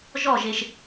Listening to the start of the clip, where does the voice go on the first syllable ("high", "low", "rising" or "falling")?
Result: falling